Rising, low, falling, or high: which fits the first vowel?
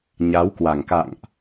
rising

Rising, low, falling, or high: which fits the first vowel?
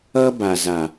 high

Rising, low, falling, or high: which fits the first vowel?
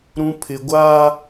high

